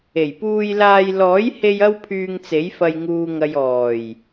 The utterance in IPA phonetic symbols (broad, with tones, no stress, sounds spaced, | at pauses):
e˨˩ j p uː˧ j l aː˧ j l ɔː˨˥ j h e˧ j ɐ˥ w pʰ yː˧ ŋ t͡s e˨˥ j f ɐ˧ j ŋ uː˨ ŋ ɐ˨ j ɔː˨˩ j